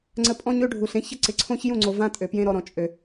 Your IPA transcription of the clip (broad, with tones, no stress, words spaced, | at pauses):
ŋ͡ǀə˧ pʼɔ̃˦ɲø˦ɖʱu˨ɬ ẽ˦çə˦ ǀɪ˨ǀʰõ˦çjũ˦˨ŋ͡ǀo˨ vã˦tʼø˨pjẽ˦ ɾɔ˧ɾɔ̃˨t͡ʃʼø˨